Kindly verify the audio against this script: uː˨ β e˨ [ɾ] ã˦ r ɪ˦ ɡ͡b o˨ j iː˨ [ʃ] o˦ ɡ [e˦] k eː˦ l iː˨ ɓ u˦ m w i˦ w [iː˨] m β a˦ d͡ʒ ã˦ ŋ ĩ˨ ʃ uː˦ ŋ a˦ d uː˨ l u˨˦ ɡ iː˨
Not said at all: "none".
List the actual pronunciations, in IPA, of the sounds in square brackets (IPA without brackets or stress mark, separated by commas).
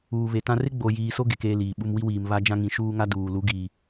t, s, e˨, iː˨